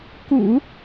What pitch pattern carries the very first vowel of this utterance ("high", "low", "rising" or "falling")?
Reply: low